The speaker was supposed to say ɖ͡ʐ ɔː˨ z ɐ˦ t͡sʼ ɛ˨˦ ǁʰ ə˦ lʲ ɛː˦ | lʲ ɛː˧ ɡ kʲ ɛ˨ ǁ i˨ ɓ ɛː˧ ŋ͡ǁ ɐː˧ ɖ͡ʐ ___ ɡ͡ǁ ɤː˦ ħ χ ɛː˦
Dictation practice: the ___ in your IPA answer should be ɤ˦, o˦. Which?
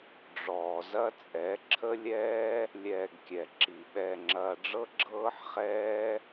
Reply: ɤ˦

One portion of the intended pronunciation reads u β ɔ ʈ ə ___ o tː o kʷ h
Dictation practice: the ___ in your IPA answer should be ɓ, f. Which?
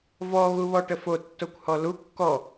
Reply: f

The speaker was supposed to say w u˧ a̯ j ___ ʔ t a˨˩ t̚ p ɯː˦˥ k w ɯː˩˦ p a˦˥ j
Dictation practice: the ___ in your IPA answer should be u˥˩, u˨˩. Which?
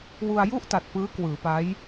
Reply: u˥˩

